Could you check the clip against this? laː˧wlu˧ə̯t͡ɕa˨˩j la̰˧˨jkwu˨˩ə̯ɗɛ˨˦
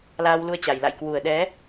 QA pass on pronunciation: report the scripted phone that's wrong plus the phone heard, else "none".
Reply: none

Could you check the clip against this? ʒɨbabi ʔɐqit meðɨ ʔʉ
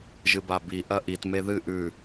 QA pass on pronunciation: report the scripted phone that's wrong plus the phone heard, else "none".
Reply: q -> ʔ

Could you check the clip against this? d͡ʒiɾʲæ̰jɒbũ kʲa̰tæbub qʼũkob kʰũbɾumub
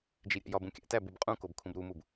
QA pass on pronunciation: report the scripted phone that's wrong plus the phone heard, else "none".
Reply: a̰ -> æ̰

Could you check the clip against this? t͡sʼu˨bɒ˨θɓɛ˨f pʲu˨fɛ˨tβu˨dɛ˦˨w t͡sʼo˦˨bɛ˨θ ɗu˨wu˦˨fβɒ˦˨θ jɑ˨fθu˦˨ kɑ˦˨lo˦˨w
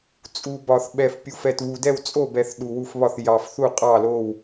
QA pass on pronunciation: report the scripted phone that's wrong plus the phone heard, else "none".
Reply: k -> qʼ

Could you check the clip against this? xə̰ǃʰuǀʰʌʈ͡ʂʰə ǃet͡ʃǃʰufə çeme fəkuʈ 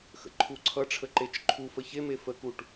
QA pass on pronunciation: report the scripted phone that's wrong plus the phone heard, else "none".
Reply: none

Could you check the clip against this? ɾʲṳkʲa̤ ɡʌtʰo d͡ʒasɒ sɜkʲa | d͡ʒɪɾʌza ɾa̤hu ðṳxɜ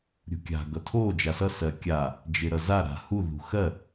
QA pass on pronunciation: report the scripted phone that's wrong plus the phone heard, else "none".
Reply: ɒ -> ʌ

